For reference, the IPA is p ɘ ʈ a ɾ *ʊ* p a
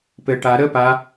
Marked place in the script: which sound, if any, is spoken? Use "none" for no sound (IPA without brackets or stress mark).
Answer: ə